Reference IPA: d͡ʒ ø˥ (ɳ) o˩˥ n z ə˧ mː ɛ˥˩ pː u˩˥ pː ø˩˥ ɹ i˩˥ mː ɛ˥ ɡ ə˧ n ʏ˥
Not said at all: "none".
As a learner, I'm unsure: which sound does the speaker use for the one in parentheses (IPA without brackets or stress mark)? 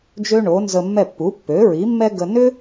ɳ